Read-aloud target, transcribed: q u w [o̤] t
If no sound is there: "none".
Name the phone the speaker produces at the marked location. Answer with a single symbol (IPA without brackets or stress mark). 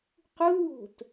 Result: o̤